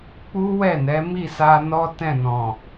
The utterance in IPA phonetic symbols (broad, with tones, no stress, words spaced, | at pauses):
k͡pu˦wɛ˦˨ nɛ˨˦mi˦˨sa˧nɔ˦ tɛ̃˦˨nɔ̃˨